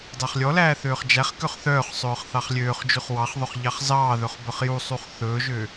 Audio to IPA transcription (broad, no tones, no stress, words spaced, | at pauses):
dɑχlʲɔlæː θøːχd͡ʒæχkøχ θœːχsˤɵːχ θɑχlʲøːχd͡ʒʉχ wɑχðˤɵχ ʎɑχzɑːðɵχ bœχjusˤuχ θɵːʒø